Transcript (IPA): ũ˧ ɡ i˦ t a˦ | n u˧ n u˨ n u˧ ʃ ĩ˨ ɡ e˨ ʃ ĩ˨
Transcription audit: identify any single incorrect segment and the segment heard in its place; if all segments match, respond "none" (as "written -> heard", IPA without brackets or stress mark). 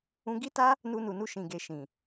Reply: none